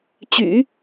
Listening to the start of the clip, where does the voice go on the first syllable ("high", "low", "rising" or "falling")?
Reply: low